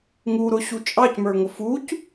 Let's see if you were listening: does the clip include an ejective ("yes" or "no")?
yes